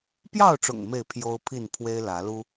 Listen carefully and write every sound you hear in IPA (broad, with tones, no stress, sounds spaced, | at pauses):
p j ɑ˥˨ ʊ̯ ʈ͡ʂ ʊ̰˨˩ ŋ m e˥˨ ɪ̯ pʰ j o˦ ʊ̯ pʰ i˥˨ n pʰ w e˦ ɪ̯ l ä˨˦ l u˦